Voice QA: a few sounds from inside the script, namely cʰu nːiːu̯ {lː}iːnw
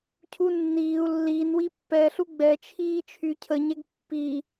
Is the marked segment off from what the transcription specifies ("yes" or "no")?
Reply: no